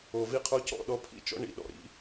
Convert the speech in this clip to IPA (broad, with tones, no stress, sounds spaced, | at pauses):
o˨ v i˦ qʰ o˦ c ɔ̰˦˨ ɗ ɔ˦ pʰ ḭ˦ t͡ʃ ɔ̰˦ ɳ ḭ˨ ɗ ɔ̰˨ ɾ ḭ˦